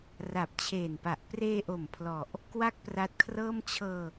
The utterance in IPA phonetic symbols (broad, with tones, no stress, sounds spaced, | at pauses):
r a˨˩ p̚ t͡ɕʰ eː˨˩ n p a˨˩ ʔ p r eː˧ ʔ o˨˩ m pʰ l ɔ˨˩ ʔ | k w a˥˩ k̚ p r a˦˥ t̚ kʰ r ɤː˥˩ m t͡ɕʰ ɤː˧